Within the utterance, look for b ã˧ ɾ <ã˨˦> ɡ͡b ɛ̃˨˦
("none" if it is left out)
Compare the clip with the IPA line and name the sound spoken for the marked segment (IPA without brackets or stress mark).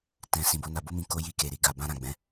ã˨